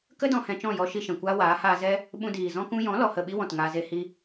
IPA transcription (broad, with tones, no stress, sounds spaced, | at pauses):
k ə˦ d ɔ̃˧ h ɛ̃˧ t͡ʃ ɔ̃˦˨ j ɔ˧ ʃ i˧ ʃ ɛ̃˨ kʷ aː˦ w aː˨˦ h aː˧ z ɛ˦ | ɓ ũ˧ d iː˨ z ɔ̃˧ k ũ˧ j ɔ̃˨˦ l ɔ˨ h ə˦˨ ɓ i˦ w ɔ̃˨ t ŋ aː˧ z e˧ h i˦